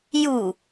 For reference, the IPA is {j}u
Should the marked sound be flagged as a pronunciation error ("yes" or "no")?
no